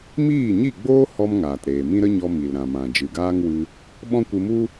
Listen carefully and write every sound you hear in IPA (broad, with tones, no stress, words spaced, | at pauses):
miː˦˨ɲi˦˨ɡ͡boː˦ hɔ˦mŋaː˨tɾeː˨mĩ˦ ɾə˦ɲɔ˧ mi˨lɾã˨mã˨ d͡ʒɨ˨ɡaː˦ŋwɨ˧ | ɓɔ̃˦kʷɨ˧mu˦